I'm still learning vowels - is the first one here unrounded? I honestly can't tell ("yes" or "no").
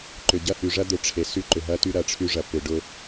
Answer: no